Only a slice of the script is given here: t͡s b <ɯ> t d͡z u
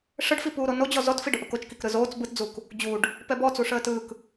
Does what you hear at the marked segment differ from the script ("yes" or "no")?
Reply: no